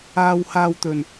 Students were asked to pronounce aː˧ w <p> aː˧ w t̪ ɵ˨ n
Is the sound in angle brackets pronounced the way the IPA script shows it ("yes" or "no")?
no